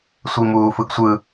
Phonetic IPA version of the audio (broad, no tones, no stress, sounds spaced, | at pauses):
sʷ i m uː f ɯ ɡ sʷ ɯ